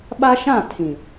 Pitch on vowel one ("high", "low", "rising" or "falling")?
high